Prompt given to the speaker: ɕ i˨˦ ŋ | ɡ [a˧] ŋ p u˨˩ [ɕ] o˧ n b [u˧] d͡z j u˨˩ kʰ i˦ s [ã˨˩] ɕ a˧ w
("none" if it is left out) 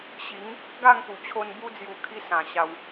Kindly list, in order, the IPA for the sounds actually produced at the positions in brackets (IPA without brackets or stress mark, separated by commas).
a˥˧, t͡ɕʰ, u˧, ã˨˩